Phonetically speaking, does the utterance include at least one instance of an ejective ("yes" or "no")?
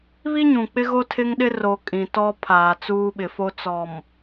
yes